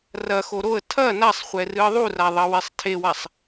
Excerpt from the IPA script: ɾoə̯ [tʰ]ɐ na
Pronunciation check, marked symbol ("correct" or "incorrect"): correct